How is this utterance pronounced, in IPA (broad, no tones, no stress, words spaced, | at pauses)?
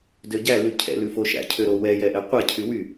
døɟælʉ cʰɛ̰lʉ foʃæ̰cʰøɾo wɛjɛʔɛ qʷɛcʰy wy